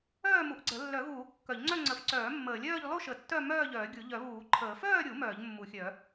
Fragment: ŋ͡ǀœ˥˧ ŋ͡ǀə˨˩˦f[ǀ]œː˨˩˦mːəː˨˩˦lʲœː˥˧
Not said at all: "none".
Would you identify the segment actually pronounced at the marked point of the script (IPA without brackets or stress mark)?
ǀ